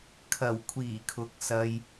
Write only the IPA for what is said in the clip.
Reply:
kʰɐ˨˩w kʷʰiː˨˩kʰʊ˨k̚sɐ˧j

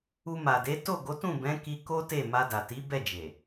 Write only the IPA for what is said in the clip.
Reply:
u˧ma˨de˨˦ to˦˨ɡo˨˦tũ˦˨ bɛ̃˨˦ki˧ ko˦te˦˨ ma˧da˨ti˨˦ bɛ˦˨d͡ʒe˨

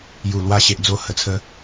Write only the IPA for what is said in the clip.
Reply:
ju˨˩lwa˧ ɕe˨ʔd͡zo˧ hə˧t͡sʰə˦

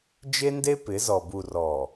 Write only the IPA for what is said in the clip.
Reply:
d͡ʒe˦nde˦pɪ˨˦zɔ˨ bu˨rɔ˨

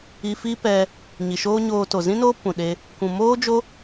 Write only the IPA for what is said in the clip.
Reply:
i˧fi˦ pɛ˧ | ɲi˨ʃoː˦ɲoː˧ to˨zĩ˦noː˦ pũ˨ɗe˧ | kʷũ˨moː˦d͡ʒo˦

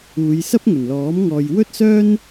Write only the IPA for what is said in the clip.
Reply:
uː˨˧jsɐ˥p̚ ŋɵ˨˩nlɔː˨˥m ŋɔː˧j wɵ˥t̚sœː˥n

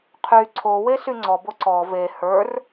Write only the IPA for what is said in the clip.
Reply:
qʰy ǀʰowe syŋ͡ǀɔbo ǀɔ ve hə˞r

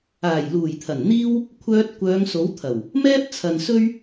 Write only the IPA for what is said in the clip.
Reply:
aː˨˩jluː˨˩jt̪ʰɐ˨˩nn̪iː˥w | kʷʰœː˧t̚ kʷœː˨˧ŋ so˨˥wt̪ʰɐ˨˩w | mɛː˥p̚t͡sʰɐ˨n sɵ˥ɥ

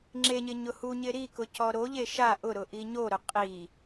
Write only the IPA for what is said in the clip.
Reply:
ŋ͡ǁeɲɪ ɲʊhuɲɪ ɾikʊ cɔɾoʎe ʃa ʔʊɾʊ ʔiɲoɾʊ qʼi

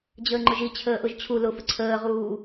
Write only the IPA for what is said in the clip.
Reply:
d͡ʑəːŋ͡ǃʊʒi t͡ɕʰəːʔʊʒt͡ɕʰu lʊfə ǀʰəːʁuː

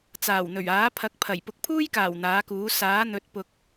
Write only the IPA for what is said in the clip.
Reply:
t͡saː˨˩wn̪ɵ˨˩ɥaː˨˥ pʰɐ˨˥k̚pʰɐ˨˩j pʊ˨˥k̚pʰuː˥jkaː˨˩w n̪aː˨˥kuː˨˥ saː˨˥n̪ɵ˨˥t̚ pʊ˨k̚

